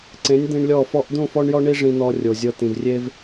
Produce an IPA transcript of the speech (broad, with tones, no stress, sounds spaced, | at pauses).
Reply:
ǀ ẽ˨˦ nʲ d̪ ĩ˧ ɳ lʲ ɔ˦˨ f ɔ˧ ʔ d̪ ũ˦˨ f ɔ˦ ɳ j ɔ˦ ɳ i˦ ʐ ĩ˧ n̪ ɔ˧ rʲ o˨ zʲ ɤ˧ t̪ ĩ˨ v rʲ e˦ v